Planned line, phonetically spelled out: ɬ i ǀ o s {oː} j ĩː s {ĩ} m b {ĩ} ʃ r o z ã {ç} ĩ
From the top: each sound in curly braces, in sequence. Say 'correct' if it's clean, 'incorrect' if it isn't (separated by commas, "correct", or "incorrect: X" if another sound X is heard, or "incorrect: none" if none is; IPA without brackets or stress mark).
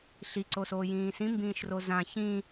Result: correct, correct, incorrect: ĩː, correct